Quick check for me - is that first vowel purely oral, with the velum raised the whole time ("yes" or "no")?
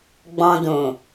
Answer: no